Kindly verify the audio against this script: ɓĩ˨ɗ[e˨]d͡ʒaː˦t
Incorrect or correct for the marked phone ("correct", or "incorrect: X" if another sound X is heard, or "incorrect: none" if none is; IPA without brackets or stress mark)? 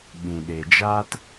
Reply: correct